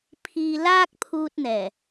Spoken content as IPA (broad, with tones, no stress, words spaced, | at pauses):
pʰiː˧ laː˥k̚pʰuː˧t̚n̪ɛː˨˩